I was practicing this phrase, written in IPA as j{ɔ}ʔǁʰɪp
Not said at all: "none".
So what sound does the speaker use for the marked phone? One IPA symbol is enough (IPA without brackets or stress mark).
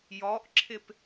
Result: ɔ